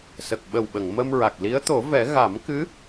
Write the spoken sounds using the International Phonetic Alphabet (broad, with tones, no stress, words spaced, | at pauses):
sə˨˩k̚ɓə˨˩wɓə˨˩˨ŋ mə˧mɹa˨˩k̚li˧˥ə̯ t̪o˨˩˦vɛ˨˩˦ ɣa˨˩˦mkɨ˧˥